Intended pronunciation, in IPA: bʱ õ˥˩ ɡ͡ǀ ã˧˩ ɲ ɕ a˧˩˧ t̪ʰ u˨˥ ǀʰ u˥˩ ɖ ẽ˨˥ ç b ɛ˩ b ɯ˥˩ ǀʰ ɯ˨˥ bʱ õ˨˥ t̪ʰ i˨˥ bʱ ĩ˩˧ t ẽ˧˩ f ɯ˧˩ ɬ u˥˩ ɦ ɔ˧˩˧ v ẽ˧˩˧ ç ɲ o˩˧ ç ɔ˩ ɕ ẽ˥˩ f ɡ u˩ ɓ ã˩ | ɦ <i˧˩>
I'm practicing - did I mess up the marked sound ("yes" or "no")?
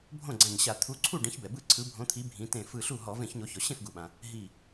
no